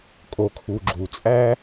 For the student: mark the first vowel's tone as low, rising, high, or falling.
low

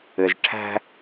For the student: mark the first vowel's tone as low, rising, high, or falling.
low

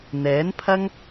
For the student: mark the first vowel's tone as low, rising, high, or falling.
rising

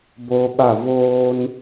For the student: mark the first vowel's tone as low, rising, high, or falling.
high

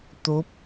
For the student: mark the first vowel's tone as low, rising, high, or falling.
rising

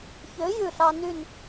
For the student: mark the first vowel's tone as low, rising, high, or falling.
rising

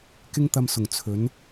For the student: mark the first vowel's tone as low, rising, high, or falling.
high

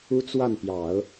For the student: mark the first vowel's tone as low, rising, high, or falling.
high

